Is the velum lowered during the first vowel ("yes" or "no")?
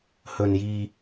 no